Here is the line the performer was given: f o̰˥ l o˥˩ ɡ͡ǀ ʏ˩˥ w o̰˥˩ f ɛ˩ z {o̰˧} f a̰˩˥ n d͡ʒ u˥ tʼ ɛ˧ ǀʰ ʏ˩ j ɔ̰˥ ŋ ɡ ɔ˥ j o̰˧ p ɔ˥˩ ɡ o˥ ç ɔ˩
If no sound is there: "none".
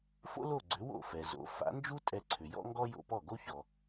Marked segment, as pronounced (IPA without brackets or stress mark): o̰˩˥